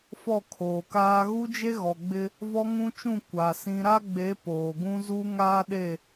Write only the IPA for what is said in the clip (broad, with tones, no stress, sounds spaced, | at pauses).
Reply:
f ɔ˦˨ kʰ oː˨ k aː˦ ɣ u˦ d͡ʒ e˦ ɣ ɔ˨ ɡ͡b ɪ˦ | v ɔ˦ ŋ ũ˦ t͡ʃ ũ˦˨ kʷ a˨ s ĩ˦ ɾ a˦ ɡ͡b e˨˦ p oː˨ ɡ ũ˦ z u˦ ŋ aː˦ ɗ e˦˨